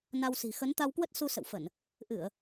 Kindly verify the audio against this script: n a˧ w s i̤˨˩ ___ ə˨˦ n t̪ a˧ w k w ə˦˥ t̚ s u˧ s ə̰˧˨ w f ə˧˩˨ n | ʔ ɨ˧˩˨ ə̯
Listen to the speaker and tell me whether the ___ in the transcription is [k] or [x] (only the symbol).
x